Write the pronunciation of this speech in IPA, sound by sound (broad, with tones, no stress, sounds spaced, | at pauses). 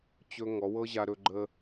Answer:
t͡ɕ ɵ˦ ŋ ɔ˨˦ w ɤ˦ ʑ a˧ ɾ ɵ˧ ɡ͡ǃ ə˧